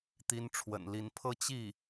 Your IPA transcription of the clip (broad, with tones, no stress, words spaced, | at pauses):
t̪i˧˥nʈ͡ʂʰwə̰˨˩nli˧˥n pʰɤ˥˧ t͡ɕi˥˩